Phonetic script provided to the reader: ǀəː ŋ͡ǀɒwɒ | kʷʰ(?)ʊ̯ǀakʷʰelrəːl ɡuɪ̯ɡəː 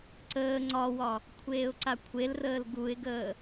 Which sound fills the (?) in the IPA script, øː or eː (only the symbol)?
eː